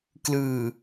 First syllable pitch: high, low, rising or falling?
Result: low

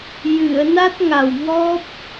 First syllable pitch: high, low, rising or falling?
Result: low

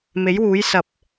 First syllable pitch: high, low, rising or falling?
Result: rising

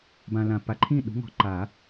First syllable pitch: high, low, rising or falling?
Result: low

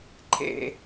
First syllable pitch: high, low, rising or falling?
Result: low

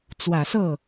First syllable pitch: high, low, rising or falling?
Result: low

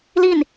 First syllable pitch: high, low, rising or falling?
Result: falling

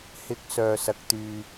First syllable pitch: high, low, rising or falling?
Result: rising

